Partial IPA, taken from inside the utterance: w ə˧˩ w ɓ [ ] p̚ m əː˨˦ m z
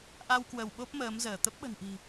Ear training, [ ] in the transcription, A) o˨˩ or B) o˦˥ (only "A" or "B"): B